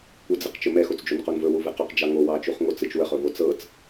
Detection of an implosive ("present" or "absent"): absent